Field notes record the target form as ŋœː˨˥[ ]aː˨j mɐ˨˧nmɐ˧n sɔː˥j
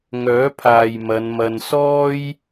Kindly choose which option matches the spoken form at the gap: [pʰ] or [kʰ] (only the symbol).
pʰ